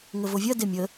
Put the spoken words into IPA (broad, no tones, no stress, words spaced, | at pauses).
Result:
ŋəvovʲɐ demʲə